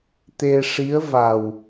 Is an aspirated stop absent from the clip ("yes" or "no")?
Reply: yes